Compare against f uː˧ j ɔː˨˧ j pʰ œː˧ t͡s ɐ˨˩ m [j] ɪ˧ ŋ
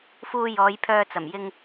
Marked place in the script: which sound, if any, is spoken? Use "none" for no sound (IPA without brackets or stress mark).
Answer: j